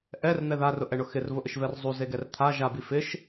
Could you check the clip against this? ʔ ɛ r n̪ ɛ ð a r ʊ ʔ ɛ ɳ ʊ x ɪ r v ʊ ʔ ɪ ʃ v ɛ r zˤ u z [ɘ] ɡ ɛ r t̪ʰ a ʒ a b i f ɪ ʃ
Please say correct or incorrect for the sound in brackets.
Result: incorrect